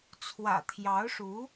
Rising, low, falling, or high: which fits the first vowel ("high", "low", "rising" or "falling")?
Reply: low